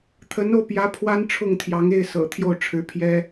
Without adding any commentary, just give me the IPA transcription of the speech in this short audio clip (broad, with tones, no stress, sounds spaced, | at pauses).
t̪ʰ ə˧˥ n o˧ ʊ̯ p j ä˧˥ pʰ w a˥ n ʈ͡ʂʰ ʊ˥˩ ŋ t̪ʰ j ɑ˧˥ ŋ e˥˩ ɪ̯ s ɤ̰˨˩ t̪ʰ j o˥˩ ʊ̯ ʈ͡ʂʰ ɻ̩˧˥ pʰ j ɛ˥